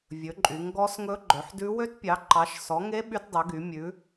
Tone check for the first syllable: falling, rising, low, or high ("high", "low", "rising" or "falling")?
rising